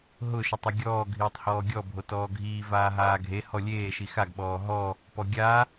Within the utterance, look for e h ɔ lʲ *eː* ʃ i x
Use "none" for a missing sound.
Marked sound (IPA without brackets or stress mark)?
eː